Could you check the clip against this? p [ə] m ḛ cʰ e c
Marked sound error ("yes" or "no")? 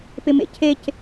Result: yes